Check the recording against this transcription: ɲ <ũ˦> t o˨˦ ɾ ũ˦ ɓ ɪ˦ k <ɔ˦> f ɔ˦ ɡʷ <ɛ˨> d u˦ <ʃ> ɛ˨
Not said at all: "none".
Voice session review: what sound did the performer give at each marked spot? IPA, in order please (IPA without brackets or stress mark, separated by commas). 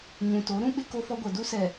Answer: ũ˨, o˦, ɛ˨, s